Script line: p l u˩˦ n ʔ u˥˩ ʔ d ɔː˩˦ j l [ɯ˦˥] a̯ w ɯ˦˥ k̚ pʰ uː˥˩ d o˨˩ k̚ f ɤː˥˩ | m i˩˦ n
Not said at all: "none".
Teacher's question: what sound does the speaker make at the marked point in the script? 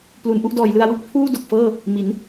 ɯ˧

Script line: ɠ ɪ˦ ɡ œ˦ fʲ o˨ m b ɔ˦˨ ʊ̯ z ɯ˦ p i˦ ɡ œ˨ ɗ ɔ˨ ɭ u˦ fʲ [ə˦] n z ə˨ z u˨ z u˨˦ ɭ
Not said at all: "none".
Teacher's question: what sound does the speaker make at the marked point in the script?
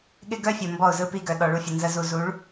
ə˨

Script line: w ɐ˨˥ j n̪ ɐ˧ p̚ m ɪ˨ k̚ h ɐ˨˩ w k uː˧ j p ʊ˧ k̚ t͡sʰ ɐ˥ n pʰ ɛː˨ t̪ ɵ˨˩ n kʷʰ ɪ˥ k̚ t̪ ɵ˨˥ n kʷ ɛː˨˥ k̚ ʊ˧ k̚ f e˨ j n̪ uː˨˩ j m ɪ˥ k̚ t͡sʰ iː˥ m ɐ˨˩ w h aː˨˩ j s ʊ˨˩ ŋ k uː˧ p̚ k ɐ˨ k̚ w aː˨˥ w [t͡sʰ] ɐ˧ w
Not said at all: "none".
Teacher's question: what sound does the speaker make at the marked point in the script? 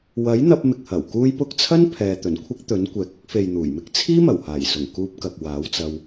t͡s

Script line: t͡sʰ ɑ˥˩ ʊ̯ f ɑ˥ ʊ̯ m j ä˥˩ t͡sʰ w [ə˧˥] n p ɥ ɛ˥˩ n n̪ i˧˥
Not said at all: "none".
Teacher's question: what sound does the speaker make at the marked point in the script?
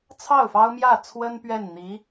ə˥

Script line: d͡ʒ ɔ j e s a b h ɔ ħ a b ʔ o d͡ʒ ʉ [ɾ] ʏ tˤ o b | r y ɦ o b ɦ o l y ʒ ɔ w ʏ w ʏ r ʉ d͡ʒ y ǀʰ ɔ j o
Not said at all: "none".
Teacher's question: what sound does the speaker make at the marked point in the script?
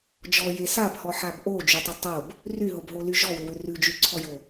tˤ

